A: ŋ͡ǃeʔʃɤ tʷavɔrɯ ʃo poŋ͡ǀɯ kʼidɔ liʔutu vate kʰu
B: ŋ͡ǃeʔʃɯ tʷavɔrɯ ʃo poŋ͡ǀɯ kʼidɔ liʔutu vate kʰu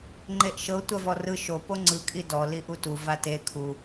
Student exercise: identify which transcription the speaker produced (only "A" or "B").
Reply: A